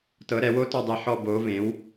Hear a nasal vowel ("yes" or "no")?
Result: yes